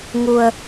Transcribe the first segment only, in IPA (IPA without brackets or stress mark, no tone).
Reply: ŋ